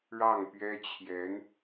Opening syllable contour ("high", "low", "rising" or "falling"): falling